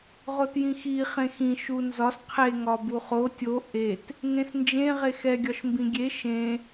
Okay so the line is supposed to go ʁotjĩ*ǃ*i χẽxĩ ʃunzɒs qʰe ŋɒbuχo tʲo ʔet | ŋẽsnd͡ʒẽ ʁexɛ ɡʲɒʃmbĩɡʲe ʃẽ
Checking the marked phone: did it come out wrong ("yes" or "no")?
yes